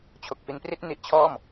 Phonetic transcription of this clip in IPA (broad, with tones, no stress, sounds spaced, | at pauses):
t͡ɕʰ o˨˩ k̚ f i˧ n p r i˥˩ t̚ n i˦˥ ʔ t͡ɕʰ ɔː˥˩ m